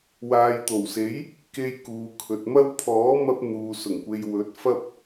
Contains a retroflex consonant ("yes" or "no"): no